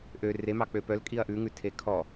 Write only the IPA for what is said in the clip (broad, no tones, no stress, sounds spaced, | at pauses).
ʔ ø r e m ɑ k͡p ø p œ l kʼ i ɐ̯ ʔ ʉ ŋ ʉ tʰ e kʰ ɔ